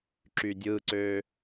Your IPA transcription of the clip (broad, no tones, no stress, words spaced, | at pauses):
ǁydʲɯǀø